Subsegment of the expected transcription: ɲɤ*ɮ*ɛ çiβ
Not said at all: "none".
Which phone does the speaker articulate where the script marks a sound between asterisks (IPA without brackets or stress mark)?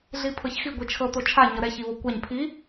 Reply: ɾ